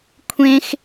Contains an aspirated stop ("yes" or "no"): yes